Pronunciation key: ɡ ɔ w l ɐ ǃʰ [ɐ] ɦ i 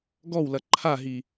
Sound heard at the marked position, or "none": a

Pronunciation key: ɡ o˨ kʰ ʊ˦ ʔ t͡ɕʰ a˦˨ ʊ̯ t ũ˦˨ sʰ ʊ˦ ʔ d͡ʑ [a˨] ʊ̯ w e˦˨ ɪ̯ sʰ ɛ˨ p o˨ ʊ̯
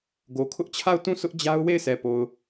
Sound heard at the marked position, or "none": a˦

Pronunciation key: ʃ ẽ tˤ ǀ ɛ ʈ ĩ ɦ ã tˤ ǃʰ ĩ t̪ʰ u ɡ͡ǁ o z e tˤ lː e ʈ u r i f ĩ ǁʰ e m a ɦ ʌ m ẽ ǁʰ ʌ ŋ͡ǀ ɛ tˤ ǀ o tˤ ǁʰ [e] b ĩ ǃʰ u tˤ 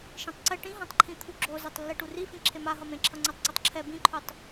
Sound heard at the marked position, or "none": ɛ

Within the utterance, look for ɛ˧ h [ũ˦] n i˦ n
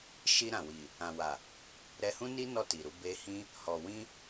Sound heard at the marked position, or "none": ũ˦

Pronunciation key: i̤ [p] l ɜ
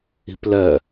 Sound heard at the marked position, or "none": p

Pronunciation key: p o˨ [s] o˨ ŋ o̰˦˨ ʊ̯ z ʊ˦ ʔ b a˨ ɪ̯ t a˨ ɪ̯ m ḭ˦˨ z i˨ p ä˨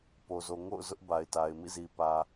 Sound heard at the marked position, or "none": z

